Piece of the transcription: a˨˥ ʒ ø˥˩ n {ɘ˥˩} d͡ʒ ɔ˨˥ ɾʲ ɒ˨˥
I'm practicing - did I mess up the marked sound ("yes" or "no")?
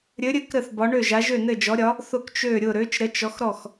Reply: no